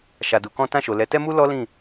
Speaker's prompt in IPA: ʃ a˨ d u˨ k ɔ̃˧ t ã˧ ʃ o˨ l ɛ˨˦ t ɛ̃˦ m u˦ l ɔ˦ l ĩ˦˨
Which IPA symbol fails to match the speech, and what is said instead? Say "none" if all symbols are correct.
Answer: ɛ̃˦ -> ɛ˦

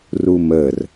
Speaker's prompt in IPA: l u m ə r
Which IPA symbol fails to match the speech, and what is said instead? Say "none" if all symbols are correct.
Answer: l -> r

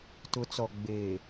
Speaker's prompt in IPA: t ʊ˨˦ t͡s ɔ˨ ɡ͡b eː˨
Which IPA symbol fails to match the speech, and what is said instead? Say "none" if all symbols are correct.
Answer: none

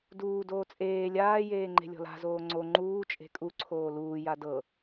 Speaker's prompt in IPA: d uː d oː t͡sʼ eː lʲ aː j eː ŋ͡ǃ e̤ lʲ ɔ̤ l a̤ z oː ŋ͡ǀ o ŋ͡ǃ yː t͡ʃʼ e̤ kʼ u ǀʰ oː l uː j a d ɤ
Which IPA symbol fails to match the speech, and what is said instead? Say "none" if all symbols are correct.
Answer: yː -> uː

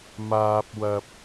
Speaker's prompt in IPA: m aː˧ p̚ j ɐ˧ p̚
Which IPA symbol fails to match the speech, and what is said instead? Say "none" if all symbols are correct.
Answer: j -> w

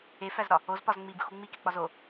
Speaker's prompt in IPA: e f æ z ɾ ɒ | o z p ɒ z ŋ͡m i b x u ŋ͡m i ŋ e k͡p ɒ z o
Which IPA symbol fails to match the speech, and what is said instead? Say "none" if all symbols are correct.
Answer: ŋ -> k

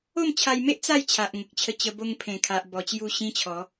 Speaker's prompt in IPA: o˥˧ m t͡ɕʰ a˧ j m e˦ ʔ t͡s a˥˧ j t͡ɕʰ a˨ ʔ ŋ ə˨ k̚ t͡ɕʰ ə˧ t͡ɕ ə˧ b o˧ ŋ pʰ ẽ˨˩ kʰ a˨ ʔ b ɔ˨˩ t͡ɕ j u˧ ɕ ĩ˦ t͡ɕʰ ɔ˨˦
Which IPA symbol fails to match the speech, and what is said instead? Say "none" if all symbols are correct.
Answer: none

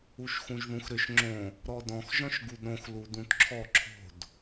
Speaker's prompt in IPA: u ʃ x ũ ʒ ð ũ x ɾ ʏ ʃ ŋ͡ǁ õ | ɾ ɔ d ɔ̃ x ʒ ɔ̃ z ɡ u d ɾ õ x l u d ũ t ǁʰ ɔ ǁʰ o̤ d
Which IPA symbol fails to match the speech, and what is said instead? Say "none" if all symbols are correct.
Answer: z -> ʃ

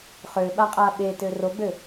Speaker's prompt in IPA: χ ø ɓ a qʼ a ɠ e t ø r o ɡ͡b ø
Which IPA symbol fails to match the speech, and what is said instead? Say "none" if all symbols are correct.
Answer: ɠ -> ɓ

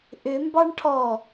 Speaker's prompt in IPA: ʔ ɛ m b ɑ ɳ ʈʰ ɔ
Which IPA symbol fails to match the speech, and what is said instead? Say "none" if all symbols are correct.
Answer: ɛ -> ʏ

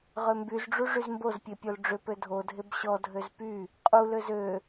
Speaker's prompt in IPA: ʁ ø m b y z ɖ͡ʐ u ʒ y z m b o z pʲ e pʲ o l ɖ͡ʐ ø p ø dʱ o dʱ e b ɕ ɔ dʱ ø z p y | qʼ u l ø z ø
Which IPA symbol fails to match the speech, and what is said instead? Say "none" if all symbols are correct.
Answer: ʒ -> ʐ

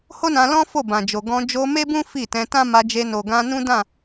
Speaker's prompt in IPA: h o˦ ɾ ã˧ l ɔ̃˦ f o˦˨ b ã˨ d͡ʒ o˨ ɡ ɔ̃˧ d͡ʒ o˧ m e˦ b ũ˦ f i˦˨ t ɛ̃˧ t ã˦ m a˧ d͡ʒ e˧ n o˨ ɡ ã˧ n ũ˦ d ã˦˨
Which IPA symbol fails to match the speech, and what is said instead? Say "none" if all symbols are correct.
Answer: ɾ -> n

